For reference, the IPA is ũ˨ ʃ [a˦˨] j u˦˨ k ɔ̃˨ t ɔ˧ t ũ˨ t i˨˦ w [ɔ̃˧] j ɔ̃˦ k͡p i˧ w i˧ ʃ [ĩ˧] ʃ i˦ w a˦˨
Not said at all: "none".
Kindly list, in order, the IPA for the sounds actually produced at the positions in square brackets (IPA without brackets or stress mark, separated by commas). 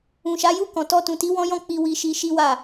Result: a˨˦, ɔ̃˦, i˧